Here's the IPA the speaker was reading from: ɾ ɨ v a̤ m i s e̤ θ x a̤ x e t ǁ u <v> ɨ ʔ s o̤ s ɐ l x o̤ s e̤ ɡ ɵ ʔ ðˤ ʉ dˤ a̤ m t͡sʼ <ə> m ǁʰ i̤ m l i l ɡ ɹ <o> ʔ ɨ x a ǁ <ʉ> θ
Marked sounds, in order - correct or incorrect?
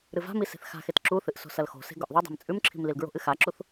incorrect: θ, incorrect: ʉ, incorrect: o̤, incorrect: u

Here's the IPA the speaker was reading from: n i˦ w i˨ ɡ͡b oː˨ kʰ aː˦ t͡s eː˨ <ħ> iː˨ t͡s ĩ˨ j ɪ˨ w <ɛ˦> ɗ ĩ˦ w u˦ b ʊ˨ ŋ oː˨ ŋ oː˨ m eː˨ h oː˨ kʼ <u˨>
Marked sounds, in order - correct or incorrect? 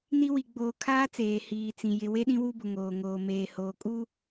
incorrect: h, incorrect: e˦, incorrect: u˦

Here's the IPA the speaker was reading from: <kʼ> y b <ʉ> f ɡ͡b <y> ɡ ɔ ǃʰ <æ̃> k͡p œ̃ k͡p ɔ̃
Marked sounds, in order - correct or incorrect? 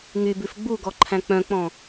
incorrect: ŋ, correct, incorrect: u, correct

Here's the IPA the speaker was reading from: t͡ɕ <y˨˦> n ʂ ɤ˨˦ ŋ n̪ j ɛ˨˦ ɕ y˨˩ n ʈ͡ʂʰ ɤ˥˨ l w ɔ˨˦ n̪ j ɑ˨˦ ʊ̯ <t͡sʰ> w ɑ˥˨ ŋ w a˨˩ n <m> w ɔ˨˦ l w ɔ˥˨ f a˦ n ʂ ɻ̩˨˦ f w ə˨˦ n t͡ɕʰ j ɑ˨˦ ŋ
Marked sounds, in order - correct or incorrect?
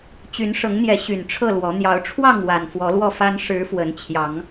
correct, incorrect: ʈ͡ʂʰ, incorrect: f

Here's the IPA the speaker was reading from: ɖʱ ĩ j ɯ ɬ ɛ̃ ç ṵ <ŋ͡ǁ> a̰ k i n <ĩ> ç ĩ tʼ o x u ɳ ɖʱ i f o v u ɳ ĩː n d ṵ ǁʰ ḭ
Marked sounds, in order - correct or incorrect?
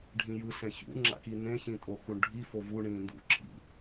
correct, incorrect: ẽ

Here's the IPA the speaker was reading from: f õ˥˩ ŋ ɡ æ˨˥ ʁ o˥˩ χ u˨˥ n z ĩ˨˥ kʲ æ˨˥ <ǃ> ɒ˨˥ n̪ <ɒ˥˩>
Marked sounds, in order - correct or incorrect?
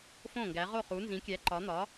correct, incorrect: ɒ˨˥

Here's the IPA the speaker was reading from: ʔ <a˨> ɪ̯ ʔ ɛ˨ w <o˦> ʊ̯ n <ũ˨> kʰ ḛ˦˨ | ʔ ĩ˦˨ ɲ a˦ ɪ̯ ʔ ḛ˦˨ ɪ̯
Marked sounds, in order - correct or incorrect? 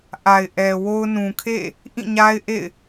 correct, correct, correct

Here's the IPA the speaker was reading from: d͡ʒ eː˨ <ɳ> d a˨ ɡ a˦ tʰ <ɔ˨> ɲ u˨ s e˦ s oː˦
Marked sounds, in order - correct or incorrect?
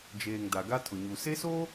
incorrect: ŋ, incorrect: ʊ˨

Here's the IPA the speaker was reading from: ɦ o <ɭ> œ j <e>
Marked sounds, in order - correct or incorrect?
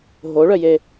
correct, correct

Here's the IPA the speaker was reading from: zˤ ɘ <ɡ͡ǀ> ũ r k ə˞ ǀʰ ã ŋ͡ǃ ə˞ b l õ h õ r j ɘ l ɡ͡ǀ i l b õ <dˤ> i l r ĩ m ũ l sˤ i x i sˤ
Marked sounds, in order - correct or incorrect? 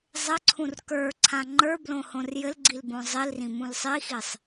incorrect: ǀʰ, incorrect: zˤ

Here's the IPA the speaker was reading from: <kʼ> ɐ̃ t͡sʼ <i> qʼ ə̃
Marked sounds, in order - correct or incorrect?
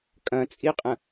correct, correct

